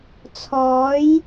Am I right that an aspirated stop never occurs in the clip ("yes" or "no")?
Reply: no